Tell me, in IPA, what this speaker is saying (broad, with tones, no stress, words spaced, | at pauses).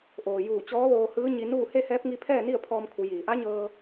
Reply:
ʔoː˩juː˧˩ t͡ɕɔː˧˥ʋoː˧hɯː˧˥ ɲi˧nuː˥˨ he˥˨hɛː˧˥p̚ŋi˧pʰɛː˥˨ ni˥˨ə̯pʰɔː˧mkʰu˩˧ jiː˩˧ ʔa˧˥ɲɤː˧